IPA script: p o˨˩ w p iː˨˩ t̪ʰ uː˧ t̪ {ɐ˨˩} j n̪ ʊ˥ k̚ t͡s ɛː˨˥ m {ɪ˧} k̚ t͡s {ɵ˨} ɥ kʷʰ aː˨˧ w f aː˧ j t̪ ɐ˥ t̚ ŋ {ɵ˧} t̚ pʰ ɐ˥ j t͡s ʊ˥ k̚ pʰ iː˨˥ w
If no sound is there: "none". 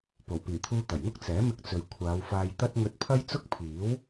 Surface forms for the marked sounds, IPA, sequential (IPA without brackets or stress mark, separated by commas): ɐ˨˩, ɪ˧, ɵ˨, ɵ˧